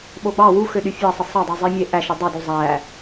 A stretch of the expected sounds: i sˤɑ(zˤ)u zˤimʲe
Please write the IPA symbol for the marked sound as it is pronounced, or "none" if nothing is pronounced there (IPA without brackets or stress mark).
dˤ